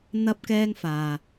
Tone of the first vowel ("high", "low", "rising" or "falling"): high